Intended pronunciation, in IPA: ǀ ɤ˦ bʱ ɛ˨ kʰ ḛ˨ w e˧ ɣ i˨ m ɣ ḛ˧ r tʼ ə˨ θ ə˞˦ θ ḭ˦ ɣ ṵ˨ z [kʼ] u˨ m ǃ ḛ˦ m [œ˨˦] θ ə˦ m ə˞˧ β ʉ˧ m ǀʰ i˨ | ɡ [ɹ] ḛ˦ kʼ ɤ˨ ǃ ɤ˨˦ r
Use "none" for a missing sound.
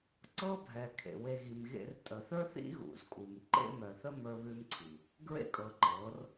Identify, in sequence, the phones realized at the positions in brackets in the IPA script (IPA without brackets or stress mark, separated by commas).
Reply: kʼ, œ˨, ɹ